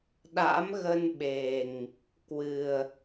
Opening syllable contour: rising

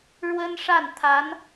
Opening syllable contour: high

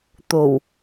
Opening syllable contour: low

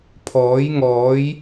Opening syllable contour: rising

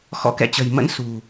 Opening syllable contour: rising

